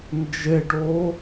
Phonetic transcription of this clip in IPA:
n d͡ʒ e ɖ oː

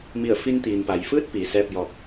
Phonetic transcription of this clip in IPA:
m i˧˩ ə̯ f i˧ n t̪ iː˩ n p a˩ j f ɯː˥˨ t̚ p iː˩ s ɛː˥˨ p̚ j ɔː˧ k̚

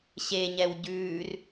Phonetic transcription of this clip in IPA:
ɕ e ɲ ɛ w ɟ ʉː r

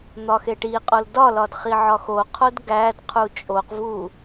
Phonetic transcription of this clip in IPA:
n̪ ɒ x e ʈ i qʼ o l d ɒ l ɒ d χ i ʕ ɒ x o qʰ o d ɡ æ d qʰ u t͡ʃʼ o q v u

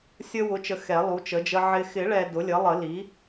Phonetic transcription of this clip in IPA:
sʲ ə˦ w ʊ˩˥ t͡ʃ ə˨ x ɛ˨˩˦ lˠ u˩˥ t͡ʃ ə˩˥ d͡ʒ ə˦ ʕ ɪ˨ x ɪ˨˩˦ ɭ ɛ˨ d ʊ˩˥ lʲ ə˩˥ lˠ ə˨˩˦ l i˩˥

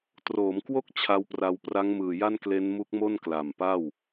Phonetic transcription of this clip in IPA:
t r oː˩˦ m k w o˥˩ k̚ t͡ɕʰ a˦˥ w p r a˧ w p r a˦˥ ŋ m ɯː˨˩ j a˥˩ n k l e˦˥ n m u˦˥ k̚ m o˥˩ n k l a˨˩ m p a˥˩ w

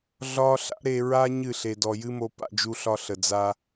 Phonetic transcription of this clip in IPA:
ɮ ɒ˦ ɬ a̰˦ ɾ e˧ ɹ a˦ ɲ ɨ˦˨ ɬ e˨ d ɔ˨ j ɨ˦ m o˧ p a̰˧ d͡ʒ u˧ ɬ ɒ˧ ɬ ə˨ d͡z a˧

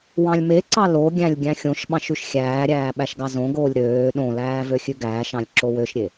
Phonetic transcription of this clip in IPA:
w ɑ̃ lʲ m e ǀ ɑ l o ɡʲ æ̃ lʲ ɡʲ æ̃ xʲ õ ʃ ɓ ɑ̃ ʃ ʉ ʃ xʲ æː ɾʲ æː ɓ æ ʃ ɡ ɑ z õ ɡ oː lʲ ɾ øː ɗ õ l æː v ø xʲ ʉ ɡ æː ʃ ɑ̃ lʲ ǁ o w ø ʃ ɾʲ e

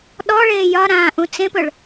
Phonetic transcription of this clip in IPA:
ɗ ɔ ɭ eː j ɒ ɾ ãː ʔ ũ t͡s ẽ p ɵ ɭ

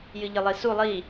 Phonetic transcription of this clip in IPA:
j ɨ ʎ ɘ lˠ i s u lˠ i

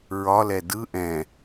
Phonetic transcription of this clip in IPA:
ɹ ɒ l ɛ d ɯ ʔ ɛ̃

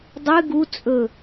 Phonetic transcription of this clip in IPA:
dˤ ɨ ɡ u t͡sʼ ɵ

